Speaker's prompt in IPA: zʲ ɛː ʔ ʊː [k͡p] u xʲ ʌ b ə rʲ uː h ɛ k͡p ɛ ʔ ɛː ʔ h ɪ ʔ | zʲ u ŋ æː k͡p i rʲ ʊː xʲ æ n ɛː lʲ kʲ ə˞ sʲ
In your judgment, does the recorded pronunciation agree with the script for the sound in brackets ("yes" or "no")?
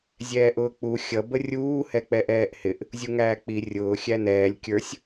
yes